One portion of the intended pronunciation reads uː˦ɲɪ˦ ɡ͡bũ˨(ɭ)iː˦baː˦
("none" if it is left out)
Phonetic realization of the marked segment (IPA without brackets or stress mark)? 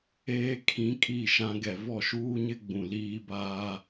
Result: l